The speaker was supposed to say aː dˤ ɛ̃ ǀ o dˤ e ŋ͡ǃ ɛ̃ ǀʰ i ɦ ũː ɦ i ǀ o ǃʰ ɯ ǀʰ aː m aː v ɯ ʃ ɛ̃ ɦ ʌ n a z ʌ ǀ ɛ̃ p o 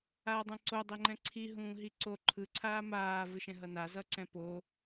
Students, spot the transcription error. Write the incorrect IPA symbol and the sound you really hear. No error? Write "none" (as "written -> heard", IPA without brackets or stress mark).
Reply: none